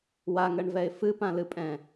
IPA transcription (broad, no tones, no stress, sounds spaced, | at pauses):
w a ŋ ɜ ɳ v ɛ ɪ̯ f ɨ p ã l ɨ pʼ ɛ̃